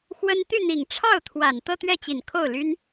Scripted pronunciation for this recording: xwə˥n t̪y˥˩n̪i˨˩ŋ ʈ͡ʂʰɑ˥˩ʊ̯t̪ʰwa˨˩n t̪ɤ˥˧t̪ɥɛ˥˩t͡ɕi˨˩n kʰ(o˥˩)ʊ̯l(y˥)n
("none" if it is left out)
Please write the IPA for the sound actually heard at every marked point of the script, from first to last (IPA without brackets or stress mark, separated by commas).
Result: o˥˩, y˥